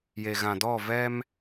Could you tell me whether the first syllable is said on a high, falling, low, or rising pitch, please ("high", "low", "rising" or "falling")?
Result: low